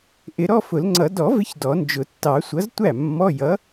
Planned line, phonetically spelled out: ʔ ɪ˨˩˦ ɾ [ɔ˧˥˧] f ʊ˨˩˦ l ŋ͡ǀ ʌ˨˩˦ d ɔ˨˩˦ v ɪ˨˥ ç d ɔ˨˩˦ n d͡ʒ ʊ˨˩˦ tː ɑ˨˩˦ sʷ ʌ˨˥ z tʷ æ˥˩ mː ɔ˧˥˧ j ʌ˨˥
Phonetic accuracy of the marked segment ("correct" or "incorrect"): correct